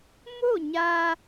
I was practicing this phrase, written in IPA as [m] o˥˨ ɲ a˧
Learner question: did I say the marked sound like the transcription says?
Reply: yes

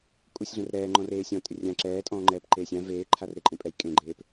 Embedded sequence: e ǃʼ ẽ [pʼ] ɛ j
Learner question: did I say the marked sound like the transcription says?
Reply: yes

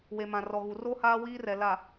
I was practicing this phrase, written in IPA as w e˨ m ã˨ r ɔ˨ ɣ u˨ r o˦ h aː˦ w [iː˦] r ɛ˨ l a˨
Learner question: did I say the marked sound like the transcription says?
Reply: yes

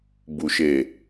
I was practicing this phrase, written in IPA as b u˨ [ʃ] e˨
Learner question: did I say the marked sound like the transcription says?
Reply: yes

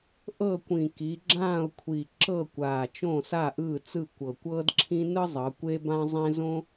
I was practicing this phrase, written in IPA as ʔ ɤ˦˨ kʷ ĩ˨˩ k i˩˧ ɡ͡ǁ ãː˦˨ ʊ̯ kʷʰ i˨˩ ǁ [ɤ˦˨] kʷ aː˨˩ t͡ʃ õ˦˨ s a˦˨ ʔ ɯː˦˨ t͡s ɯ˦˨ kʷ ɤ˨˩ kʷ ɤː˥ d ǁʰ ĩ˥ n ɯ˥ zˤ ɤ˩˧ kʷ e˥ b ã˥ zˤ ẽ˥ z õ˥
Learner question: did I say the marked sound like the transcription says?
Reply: yes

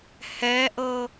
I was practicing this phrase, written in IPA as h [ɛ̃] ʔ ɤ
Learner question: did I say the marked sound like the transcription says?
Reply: no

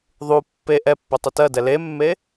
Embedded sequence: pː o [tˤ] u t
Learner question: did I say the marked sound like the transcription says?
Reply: yes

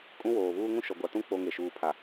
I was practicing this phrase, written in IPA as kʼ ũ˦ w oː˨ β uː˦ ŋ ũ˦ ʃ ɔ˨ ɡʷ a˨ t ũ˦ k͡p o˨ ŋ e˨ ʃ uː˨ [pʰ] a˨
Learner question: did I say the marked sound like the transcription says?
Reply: yes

